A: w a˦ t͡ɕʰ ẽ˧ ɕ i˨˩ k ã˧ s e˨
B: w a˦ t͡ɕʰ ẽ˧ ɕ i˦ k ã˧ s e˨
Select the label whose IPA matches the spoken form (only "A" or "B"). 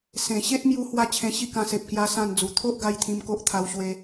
B